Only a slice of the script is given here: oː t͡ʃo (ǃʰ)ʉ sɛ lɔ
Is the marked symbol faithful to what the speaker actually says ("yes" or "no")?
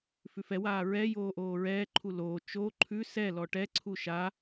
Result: yes